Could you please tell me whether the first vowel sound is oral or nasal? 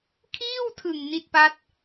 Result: oral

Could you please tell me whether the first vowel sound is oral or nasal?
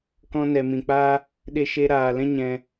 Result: nasal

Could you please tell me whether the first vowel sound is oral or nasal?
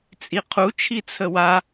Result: oral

